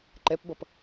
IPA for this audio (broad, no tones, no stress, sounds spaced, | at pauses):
ǃ ɛ p b ʌ p